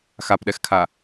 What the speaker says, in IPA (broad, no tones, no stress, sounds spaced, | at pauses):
x a p ɗ ɛ x kʰ a